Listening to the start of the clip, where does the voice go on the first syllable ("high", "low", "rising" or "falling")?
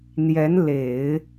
rising